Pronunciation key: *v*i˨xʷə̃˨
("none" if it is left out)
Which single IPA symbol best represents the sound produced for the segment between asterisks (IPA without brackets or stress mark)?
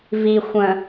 v